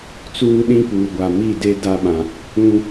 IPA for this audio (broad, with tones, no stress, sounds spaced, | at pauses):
t͡s uː˦ ɗ ĩ˦ p uː˨ ɡʷ a˨ m i˦˨ d e˦ d a˦ ɓ ã˨ | ũ˦